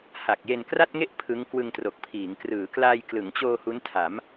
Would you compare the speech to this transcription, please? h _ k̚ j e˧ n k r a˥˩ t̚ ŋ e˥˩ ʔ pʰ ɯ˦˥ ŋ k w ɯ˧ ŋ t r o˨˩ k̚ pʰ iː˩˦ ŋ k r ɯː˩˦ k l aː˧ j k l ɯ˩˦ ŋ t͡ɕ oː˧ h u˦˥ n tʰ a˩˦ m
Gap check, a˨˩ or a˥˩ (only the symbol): a˨˩